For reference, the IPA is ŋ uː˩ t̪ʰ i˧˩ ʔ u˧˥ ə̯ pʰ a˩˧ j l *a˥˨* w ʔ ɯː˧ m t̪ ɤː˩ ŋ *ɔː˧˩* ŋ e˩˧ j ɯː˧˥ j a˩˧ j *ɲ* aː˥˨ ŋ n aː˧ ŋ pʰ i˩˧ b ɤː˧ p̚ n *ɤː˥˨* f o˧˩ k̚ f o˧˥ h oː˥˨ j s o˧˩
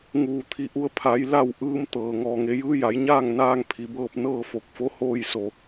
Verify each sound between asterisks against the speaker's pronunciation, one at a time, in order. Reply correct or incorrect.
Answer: correct, correct, correct, correct

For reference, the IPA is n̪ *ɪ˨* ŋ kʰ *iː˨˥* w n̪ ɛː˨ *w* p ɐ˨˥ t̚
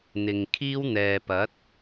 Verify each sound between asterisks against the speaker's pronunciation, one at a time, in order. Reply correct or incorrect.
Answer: correct, incorrect: iː˥, incorrect: none

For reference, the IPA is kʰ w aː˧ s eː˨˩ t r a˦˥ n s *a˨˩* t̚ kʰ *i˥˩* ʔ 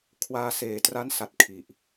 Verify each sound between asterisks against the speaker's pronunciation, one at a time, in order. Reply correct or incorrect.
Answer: correct, incorrect: i˨˩

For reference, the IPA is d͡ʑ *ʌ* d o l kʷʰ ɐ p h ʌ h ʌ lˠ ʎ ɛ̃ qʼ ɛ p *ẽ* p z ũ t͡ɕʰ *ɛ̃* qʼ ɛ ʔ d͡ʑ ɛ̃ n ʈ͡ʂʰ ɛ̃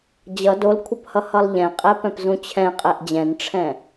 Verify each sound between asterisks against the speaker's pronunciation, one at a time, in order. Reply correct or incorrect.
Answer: correct, incorrect: ɛ̃, correct

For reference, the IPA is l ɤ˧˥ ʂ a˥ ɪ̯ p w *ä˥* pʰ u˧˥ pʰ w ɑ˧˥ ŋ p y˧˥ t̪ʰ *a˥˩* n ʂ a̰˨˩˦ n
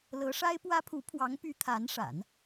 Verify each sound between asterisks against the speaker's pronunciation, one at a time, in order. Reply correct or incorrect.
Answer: correct, incorrect: a˧˥

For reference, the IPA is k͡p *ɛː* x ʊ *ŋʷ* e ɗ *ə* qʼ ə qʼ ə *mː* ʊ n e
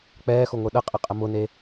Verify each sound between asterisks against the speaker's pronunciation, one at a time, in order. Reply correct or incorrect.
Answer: correct, correct, correct, incorrect: m

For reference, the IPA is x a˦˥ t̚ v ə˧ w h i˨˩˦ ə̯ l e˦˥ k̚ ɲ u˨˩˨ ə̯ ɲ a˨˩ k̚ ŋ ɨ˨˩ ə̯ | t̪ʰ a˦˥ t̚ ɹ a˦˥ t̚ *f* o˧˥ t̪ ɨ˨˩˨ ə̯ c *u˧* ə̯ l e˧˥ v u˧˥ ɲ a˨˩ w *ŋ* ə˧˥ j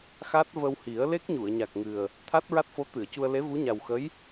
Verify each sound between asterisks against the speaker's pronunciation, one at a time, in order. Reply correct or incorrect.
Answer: correct, correct, incorrect: x

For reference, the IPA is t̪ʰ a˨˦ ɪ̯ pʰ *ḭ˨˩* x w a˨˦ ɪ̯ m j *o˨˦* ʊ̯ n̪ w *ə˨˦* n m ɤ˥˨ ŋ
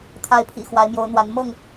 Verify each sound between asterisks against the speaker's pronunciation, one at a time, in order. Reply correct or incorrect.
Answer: correct, correct, incorrect: a˨˦

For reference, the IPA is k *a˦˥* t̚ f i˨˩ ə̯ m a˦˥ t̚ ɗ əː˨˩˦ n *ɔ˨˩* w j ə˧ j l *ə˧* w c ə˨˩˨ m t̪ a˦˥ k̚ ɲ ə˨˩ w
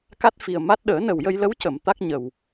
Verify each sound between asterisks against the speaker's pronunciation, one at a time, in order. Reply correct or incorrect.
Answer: correct, incorrect: ə˨˩, incorrect: ə˧˥

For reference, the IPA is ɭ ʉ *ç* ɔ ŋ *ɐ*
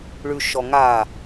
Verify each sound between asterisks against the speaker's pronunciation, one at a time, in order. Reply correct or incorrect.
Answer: incorrect: ʃ, incorrect: a

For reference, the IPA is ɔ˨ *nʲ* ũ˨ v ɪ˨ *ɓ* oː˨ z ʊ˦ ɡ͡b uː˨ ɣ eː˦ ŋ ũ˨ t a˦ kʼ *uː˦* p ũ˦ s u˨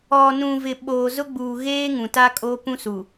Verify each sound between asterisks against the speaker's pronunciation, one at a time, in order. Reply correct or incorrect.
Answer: incorrect: n, correct, incorrect: oː˦

